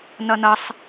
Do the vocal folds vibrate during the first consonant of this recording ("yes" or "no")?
yes